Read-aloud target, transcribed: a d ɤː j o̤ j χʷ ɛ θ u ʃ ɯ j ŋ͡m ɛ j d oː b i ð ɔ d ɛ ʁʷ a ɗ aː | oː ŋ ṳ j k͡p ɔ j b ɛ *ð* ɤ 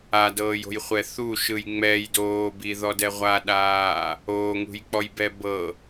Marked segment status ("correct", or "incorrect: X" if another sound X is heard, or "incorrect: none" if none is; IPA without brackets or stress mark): incorrect: b